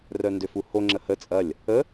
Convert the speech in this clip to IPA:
r œ n d ø f u h o ŋ͡ǁ ə h ə t͡sʼ ɐ lʲ | ə

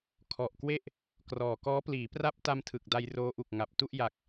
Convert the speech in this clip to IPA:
kʰ ɔ˨˩ ʔ k w e˥˩ ʔ | k r ɔː˨˩ k ɔː˦˥ p l iː˩˦ p r a˥˩ p̚ t a˧ m tʰ ɯ˨˩ k̚ d a˧ j r oː˦˥ ʔ u˨˩ k̚ ŋ a˨˩ p̚ t u˥˩ ʔ j a˨˩ k̚

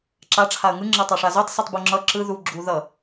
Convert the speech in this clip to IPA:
ǁ a ʈ͡ʂʰ a ə̯ ŋ ɯ ŋ͡ǁ ʌ tˤ a ʂ a z u tˤ s ɯ tˤ b u ŋ͡ǁ ʌ ǁ ɯ ð u ɡ͡ǁ u ð ʌ

